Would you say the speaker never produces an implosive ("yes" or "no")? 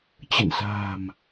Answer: yes